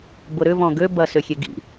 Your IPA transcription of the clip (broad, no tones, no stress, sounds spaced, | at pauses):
b ʊ ɾ ʏ v ɔ̃ ɡ ø b ɐ s ʏ xʲ e ɡ ḭ